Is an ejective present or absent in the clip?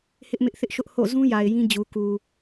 absent